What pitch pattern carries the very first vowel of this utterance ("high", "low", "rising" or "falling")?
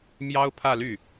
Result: high